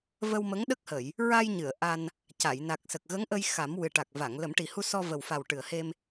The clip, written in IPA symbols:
və˧wmə˧˥ŋɗə˦˥k̚hə˨˩˨j | ɹa˧jɲɨ˨˩˨ə̯ ʔa˧n | ca˨˩˨jna˨˩k̚sə˨˩k̚ ɣə˧˥ŋʔə˧j xa˨˩˦mwɨ˨˩ ʈa˨˩k̚va˨˩˨ŋ lə˨˩˦mʈi˨˩hu˧sɔ˧ və˨˩wfa˨˩w ʈɨ˨˩ə̯he˧m

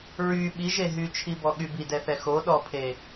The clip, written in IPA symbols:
ɹy ɓiʒe ɦyt͡ʃʰibɔɠy bidɛθɛ xoɗɔpʰe

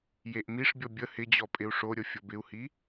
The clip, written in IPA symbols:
jeʔmiʂbʲɔ bʲə hɪd͡ʑɔ pʼɪu̯ʂoɾʲɤ fʲɤbɪu̯hi

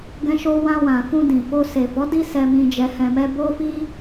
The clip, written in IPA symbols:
ɡɛ̃˧ʃo˧wã˧wã˨ fũ˧dĩ˨fo˧ se˨fɔ˨˦ di˦sɛ˧ mĩ˧d͡ʒɛ˧hɛ̃˧mɛ˦ bo˦fi˦

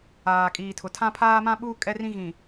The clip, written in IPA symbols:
aː˨kʼiː˨tʰʊ˨ tʰã˦pʰaː˦ mã˦ɓuː˦ kʼɛ˦rĩ˦ ɣĩ˨

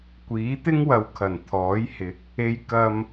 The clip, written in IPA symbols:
kʷiː˨˥t̪ɪ˥ŋwɐ˨˧w kʰɐ˨˩nt̪ʰɔː˨˥jhɪ˨˥k̚ | e˧j kɐ˨m

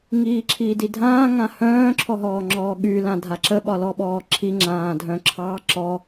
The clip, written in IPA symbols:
ŋiːǁʰiːdidʱãː ŋãhœ̃ː ǁʰɔɦɔːŋ͡ǁɔːɠy lãdʱaǁə ɓɒlɔɓɔːǁʰi ŋ͡ǁãːdʱœ̃ǁʰɑ ǁɔ

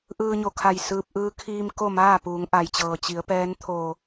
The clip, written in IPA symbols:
ʔɯː˧ɲo˧˩kʰa˧˩j sɯː˧p̚ ʔɯː˧kʰiː˧m ko˥˨maː˥˨ puː˩˧ŋʔa˩j t͡ɕɤː˩ t͡ɕi˩˧ə̯pɛː˧˥n t̪ʰo˧˩

